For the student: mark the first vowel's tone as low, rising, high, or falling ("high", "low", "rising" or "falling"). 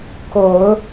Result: rising